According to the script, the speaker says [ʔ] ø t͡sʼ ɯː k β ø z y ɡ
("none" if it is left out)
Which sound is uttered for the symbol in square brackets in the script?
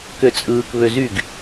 k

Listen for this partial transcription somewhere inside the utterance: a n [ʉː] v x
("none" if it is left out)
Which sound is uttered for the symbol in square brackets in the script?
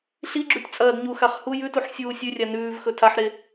ʉː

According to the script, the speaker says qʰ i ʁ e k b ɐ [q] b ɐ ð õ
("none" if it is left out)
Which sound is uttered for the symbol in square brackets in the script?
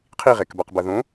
q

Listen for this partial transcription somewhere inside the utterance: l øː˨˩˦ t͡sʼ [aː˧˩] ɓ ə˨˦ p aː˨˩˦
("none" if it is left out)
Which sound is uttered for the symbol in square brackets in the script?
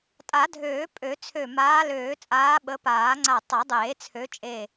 aː˨˦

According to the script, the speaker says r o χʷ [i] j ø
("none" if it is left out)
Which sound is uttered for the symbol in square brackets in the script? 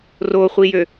i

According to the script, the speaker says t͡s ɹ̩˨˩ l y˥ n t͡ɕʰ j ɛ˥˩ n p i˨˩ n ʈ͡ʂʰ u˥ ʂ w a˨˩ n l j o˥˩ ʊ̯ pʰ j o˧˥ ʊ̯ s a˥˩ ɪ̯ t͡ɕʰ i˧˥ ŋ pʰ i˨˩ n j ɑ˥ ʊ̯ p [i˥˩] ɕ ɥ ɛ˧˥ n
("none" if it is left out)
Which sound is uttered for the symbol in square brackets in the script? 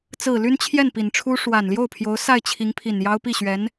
i˥˩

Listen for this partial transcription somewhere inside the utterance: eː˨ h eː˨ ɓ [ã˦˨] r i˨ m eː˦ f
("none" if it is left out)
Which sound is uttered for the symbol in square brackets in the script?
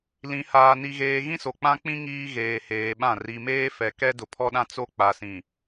ã˦˨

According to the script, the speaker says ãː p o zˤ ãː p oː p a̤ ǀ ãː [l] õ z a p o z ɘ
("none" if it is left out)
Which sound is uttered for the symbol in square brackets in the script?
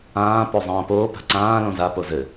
l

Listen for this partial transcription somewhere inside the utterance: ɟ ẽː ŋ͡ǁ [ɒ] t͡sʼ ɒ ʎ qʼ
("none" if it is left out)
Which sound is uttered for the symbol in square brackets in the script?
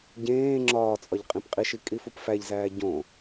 ɒː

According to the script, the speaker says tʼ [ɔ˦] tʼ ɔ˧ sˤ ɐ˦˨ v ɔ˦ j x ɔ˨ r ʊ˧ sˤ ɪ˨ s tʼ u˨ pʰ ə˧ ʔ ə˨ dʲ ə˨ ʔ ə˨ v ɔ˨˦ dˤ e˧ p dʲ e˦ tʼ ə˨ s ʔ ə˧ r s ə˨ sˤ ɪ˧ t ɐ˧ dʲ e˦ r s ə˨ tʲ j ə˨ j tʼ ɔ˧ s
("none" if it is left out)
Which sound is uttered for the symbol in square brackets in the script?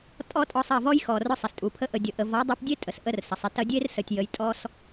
ɔ˦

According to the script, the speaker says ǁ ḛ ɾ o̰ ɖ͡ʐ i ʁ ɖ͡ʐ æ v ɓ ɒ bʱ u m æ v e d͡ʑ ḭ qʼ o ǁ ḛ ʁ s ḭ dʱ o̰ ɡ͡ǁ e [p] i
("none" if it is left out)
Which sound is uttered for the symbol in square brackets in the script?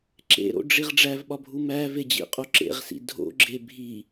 bʱ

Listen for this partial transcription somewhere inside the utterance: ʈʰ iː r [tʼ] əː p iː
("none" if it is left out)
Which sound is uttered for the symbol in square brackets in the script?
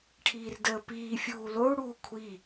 d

